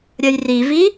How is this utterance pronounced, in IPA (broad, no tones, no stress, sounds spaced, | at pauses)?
ɾʲ ɐ j r i v i